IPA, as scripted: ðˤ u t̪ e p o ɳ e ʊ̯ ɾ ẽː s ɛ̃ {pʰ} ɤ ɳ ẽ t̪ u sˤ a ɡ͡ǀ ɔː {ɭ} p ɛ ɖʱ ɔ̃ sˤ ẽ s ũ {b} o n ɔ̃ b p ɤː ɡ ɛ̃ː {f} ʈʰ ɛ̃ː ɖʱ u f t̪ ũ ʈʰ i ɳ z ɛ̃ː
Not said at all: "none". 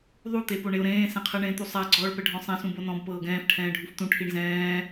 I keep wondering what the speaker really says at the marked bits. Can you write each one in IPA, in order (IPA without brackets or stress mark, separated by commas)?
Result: qʰ, ɭ, b, f